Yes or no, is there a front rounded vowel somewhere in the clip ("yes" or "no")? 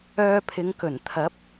yes